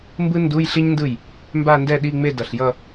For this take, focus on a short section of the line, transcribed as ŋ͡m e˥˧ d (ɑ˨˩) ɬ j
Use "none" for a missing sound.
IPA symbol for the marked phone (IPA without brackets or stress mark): ʌ˨˩